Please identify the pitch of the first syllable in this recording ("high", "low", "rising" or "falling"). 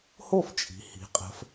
falling